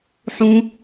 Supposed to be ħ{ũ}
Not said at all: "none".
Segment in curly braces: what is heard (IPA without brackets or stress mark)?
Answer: ũ